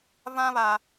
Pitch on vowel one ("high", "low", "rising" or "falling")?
high